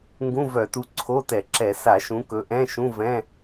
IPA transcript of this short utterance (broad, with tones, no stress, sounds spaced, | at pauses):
ŋ ɡ ũ˧˥˧ v œ˧˩˧ t u˨˦ ǀʰ o˧˥˧ t ɛ˧˩˧ ǁ ɛ˧˩˧ s a˧˩˧ ʃ ũ˨˦ k ɵ˨˦ ʔ ɛ̃˧˥˧ ʃ ũ˧˥˧ v ɛ̃˧˥˧